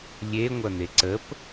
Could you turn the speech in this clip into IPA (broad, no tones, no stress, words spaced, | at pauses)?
lʲeŋʷɐ n̪eǀəp